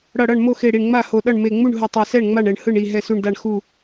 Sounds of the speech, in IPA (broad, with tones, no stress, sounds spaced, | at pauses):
ɽ ʌ˧˩ ɽ ʌ˥˩ ɳ m o˥˩ x e˧˩ ɽ i˧˩ ɳ ŋ͡m a˥˩ h o˧˩ ɗ ʌ˥˩ ɳ m e˧˩ ŋ͡m u˥˩ ɳ ɦ ɯ˧˩ tˤ ɛ˧˩ s ɛ˥˩ ɳ ŋ͡m a˥˩ ɳ ɛ˧˩ ɳ h ɯ˥˩ ɳ i˥˩ ɦ ɛ˧˩ s u˧˩ ɳ d a˧˩ ɳ x u˧˩